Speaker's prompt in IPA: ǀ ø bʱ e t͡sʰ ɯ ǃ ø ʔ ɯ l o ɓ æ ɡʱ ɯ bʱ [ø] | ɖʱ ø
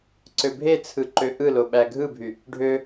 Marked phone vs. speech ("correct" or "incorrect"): incorrect